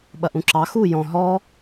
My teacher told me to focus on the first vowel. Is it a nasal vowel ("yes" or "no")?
no